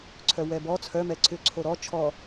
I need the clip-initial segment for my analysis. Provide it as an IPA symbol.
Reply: ǀʰ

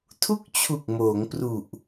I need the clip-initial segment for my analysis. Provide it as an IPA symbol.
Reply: tʰ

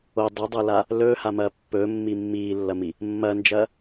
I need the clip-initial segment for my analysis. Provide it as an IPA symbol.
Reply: o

